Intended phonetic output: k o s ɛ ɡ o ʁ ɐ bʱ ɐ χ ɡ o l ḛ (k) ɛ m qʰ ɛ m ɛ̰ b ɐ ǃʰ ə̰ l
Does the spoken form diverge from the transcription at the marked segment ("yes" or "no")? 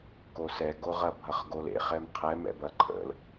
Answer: yes